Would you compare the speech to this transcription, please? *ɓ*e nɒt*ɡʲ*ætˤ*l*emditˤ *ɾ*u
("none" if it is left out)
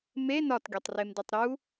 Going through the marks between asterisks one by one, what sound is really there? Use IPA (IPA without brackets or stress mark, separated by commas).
m, ɡʲ, r, ɾ